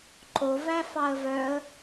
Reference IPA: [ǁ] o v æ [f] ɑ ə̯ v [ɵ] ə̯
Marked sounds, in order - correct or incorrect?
incorrect: ǃ, correct, incorrect: œ

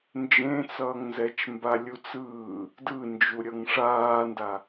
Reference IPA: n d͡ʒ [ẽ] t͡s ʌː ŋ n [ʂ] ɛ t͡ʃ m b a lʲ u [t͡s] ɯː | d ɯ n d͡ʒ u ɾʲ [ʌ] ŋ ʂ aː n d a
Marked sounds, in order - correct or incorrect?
correct, incorrect: z, correct, correct

